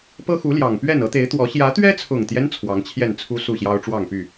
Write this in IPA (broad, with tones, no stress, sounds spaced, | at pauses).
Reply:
p ɤ˦ x u˨˦ l j ɑ˨˩ ŋ p ɥ ɛ˥˨ n ɤ˨˦ t̪ e˨˦ ɪ̯ t̪ w ɔ˨˦ ɕ j ä˨˦ t̪ ɥ ɛ˦ t͡sʰ ʊ˨˩ ŋ t̪ j ɛ˦ n t͡sʰ w ɑ˨˦ ŋ t͡ɕʰ j ɛ˥˨ n t͡sʰ u˦ s u˥˨ ɕ j ɑ˦ ʊ̯ ʈ͡ʂ w ɑ˥˨ ŋ p y˥˨